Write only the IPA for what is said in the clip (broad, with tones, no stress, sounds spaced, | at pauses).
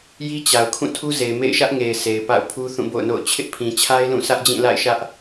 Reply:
j i˦ t͡ɕ a˨ ʊ̯ kʰ ũ˦˨ tʰ u˦ z e˨ ɪ̯ m ḛ˦˨ ɪ̯ ʃ ä˦ ʔ ŋ e˨ ɪ̯ s e˨ ɪ̯ p a̰˦˨ ʊ̯ pʰ u˦ θ ũ˦˨ b o̰˦˨ ʊ̯ n o̰˦˨ ʊ̯ t͡ɕʰ ɪ˦ ʔ pʰ ĩ˨ t͡ɕʰ a˦ ɪ̯ l ũ˦˨ s ä˦ ʔ d͡ʑ ĩ˦˨ l a̰˦˨ ɪ̯ ʃ ä˦ ʔ